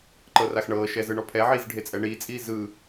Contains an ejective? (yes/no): yes